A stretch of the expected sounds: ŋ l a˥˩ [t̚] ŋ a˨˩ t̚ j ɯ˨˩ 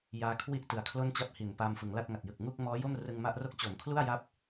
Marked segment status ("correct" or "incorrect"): correct